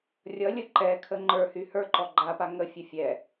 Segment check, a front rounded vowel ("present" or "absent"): present